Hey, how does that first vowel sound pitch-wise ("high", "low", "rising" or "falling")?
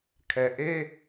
low